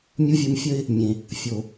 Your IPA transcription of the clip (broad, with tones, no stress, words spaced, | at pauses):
mʲu˦vʲu˧mfʲə˦ɪ̯ | mʲẽ˨ | fʲo˨